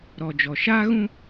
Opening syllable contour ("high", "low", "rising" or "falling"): low